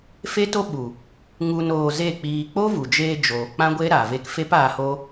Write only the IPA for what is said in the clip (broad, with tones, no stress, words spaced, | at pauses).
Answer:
fe˦to˦ ɓu˨ | ŋu˧noː˧ze˦˨k͡piː˧ k͡po˦vu˨d͡ʒeː˧d͡ʒoː˨ k͡pã˦ɡʷe˦ɾa˨ ve˧k fe˦paː˧ hoː˦